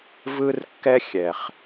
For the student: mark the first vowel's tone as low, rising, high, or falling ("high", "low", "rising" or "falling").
high